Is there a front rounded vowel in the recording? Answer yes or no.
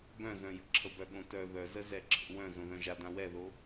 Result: yes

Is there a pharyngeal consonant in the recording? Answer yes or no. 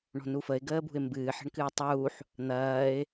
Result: yes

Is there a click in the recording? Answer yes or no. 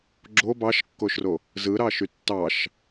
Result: yes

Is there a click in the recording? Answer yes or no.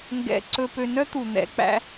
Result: yes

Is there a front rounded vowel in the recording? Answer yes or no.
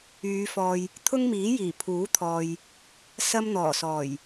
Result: yes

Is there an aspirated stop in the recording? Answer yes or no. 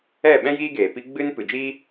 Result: no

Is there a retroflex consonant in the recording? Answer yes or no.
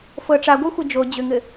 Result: yes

